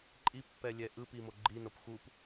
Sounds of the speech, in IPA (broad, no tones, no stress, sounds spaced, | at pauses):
ǃʼ i pː ɛ lʲ ɛ ʔ ɯ p i m o ɡ͡ǃ i n o p x u p